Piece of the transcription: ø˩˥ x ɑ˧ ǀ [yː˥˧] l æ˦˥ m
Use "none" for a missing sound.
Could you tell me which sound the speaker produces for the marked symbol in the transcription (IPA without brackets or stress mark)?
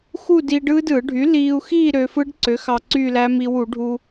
yː˥˧